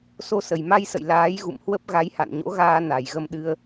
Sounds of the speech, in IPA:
s o˧ s ə˨˩ j m a˧ j s ə̰˧˨ j l aː˨˦ j ɣ ṵ˧˨ m h w ə˦˥ p̚ ɣ a˨˦ j h a̰˧˨ n ɲ o̰˧˥ ɣ aː˧ n a˨˩ j ɣ ə˧ m ɗ ɨ˧ ə̯

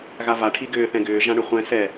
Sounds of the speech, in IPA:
ɣ a v a ʈʰ i ɡ ʏː θ ɛ̃ ɡ ʏː ʒ ã ɳ ʏ χʷ ɛ̃ s ɛ

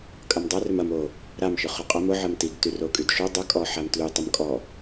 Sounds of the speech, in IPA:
kʼ ɐ m dˤ a r ʏ m ɐ m o | ɾ a m ʃ ʊ χ o qʼ ɐ m ʊ ʕ ɐ m t i ɡ t y r o kʼ y d ʃ o dˤ ə kʼ ɔ ħ a m t l y tˤ ə m kʼ ɔ

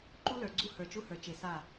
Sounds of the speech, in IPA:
ǃ u˦ l ə˞˨ ɡ͡ǀ u˦ h ə˞˨ t͡ʃ u˦ h ə˞˨ t͡ʃ e˨ s a˦˨

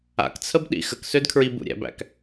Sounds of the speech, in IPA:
a̰ k t͡sʰ ə b ɗ ḭ x ə k s ø d kʰ ɹ i b ṵ ɾʲ æ̰ b æ̰ k

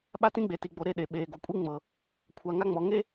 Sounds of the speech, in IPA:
ɓ a˦ t ĩ˦ ɡ͡b e˨ t i˨ ɡ͡b o˨ ɾ e˦˨ ɗ e˨ ɓ eː˨ ɡ o˨ kʷʼ i˦ ŋ͡m ɤː˨ | kʷʰ a˨ ŋ a˦ ŋ͡m ɔ˨ ŋ e˦

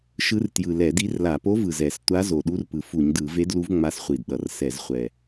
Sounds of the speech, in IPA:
ʃ ɯ˧˥ r t j ɯ˨˩ l ɛ˧˩˧ d i˧˥ r l a˧˩˧ p o˧˥ v ɯ˨˩ z ɛ˧˩˧ s tʷ a˧˥ z o˨˩ ɗ u˧˥ r p ɯ˨˩ f u˧˩˧ ɲ d ɯ˧˩˧ v e˧˥ d l u˧˥ v ŋ͡m a˧˥ s χʷ i˨˩ d ɗ ʌ˨˩ r s ɛ˧˩˧ z χʷ ɛ˨˩

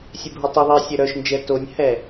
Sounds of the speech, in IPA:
sʲ e bʱ o tˤ ʏ ðˤ ɪː sʲ œ ɾ œ ʃ n d͡ʒ ɛ t o nʲ h ɛ

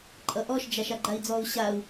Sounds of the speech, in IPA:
ǃʼ ʌ ʔ ɔ ʃ d͡ʒ a ʃ a ɡ͡ǃ a i̯ d͡z ɔ u̯ ɕ a u̯

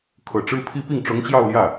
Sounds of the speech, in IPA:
kʰ ɤ˨˩ ʈ͡ʂ ɻ̩˥ pʰ i˥ p i˥˩ ŋ ʈ͡ʂ ʊ˧˥ ŋ t͡ɕ j ɑ˥˧ ʊ̯ l j ä˥˩

